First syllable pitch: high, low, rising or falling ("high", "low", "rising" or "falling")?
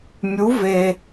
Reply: rising